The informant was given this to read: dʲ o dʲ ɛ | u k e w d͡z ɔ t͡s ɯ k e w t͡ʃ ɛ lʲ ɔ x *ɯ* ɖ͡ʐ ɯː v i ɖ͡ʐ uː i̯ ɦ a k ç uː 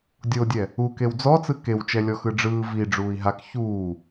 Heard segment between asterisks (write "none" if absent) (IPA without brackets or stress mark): ɯ